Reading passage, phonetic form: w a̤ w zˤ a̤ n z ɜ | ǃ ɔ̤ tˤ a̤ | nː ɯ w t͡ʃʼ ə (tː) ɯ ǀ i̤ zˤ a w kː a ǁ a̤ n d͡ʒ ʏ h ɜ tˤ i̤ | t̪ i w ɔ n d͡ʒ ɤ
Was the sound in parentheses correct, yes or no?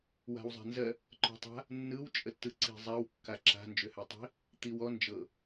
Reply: yes